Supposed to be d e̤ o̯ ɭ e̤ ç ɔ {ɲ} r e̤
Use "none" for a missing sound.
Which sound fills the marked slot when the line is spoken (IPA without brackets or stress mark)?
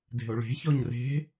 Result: ɲ